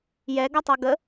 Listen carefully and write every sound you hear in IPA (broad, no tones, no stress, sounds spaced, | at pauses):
j ɛ ɡ ʌ tˤ ʌ ɡ ə